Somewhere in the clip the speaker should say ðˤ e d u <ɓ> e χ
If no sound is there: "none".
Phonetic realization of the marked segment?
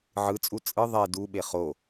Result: ɓ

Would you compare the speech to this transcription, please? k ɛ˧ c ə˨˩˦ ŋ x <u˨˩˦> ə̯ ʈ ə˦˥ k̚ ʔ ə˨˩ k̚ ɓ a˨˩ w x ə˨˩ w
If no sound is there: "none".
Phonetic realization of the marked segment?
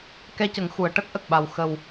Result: u˨˩˨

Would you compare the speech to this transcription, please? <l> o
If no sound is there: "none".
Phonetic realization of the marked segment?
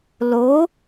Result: l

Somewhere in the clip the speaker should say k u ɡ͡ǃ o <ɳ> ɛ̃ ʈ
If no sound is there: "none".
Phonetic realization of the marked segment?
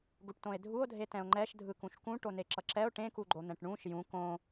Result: n̪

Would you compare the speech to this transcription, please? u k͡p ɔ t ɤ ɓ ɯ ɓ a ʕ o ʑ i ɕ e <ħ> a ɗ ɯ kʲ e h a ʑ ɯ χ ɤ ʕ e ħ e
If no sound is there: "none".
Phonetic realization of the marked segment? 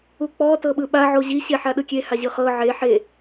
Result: ħ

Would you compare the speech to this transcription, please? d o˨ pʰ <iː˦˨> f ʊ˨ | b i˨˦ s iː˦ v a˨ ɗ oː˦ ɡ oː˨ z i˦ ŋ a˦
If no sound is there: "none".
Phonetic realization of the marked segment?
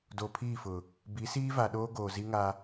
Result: iː˦˨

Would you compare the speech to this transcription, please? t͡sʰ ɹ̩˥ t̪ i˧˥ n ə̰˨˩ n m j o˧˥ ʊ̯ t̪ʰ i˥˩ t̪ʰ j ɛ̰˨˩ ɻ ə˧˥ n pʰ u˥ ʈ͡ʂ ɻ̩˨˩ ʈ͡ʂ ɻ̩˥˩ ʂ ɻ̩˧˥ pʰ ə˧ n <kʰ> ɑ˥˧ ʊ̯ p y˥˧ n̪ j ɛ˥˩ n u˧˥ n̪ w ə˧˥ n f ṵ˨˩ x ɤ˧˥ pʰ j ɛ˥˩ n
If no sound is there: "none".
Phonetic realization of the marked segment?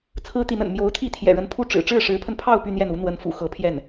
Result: pʰ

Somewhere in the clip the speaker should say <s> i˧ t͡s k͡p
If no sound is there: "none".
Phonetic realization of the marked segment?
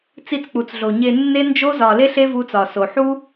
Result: t͡s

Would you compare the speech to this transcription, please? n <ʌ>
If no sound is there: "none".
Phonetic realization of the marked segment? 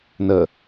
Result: ə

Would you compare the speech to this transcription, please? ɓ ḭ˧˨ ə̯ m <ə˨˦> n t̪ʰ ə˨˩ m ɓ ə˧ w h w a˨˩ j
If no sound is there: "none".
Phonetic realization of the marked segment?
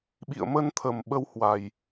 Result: ə˧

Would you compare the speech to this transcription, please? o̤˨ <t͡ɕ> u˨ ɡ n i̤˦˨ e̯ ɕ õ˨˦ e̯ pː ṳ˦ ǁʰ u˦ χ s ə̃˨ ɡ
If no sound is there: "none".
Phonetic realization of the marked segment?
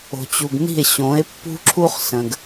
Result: t͡ɕ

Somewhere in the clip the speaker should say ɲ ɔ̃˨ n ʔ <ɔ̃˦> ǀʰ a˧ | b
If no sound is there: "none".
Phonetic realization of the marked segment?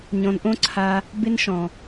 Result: õ˦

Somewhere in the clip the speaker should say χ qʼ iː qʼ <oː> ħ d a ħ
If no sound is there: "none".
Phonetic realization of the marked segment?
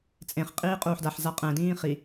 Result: uː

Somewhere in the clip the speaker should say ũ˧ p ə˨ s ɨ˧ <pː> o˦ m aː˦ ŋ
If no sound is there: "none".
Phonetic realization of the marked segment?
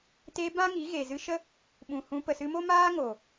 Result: m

